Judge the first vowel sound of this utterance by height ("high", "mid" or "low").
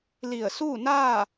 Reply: high